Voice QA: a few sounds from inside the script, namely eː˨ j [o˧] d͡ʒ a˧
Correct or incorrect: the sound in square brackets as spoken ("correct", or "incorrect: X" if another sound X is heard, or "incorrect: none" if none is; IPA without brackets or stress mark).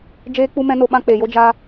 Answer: incorrect: o˦